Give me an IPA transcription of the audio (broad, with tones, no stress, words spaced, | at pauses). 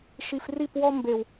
ʃi˨fri˦˨pwɔ˦ mbe˨w